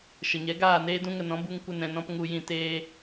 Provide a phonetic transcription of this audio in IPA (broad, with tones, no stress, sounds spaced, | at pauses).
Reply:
ʃ ə˨ ɲ ɛ˨˦ ɡ aː˦˨ n eː˦ d ũ˦ ŋ ə˧ n ɔ̃˨˦ b u˧ ŋ kʷ ə˧ n ɛ̃˧ n ɔ̃˧ p ŋ u˧ j ĩ˧ t eː˦